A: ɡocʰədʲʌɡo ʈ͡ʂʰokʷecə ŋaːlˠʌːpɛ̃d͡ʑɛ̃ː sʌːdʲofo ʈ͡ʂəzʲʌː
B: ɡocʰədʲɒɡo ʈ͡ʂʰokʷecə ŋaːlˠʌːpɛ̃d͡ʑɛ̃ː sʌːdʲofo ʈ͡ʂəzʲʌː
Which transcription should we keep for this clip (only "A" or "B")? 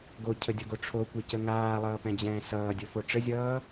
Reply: A